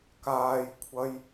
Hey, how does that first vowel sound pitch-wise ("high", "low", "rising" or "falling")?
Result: high